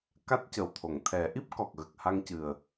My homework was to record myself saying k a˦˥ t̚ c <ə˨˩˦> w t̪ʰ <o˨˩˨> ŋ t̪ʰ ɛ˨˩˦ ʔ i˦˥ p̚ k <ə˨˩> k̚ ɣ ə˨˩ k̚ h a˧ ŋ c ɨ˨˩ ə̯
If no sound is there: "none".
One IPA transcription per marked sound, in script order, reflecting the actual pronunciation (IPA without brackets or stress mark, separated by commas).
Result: ə˨˩, o˨˩˨, ɔ˨˩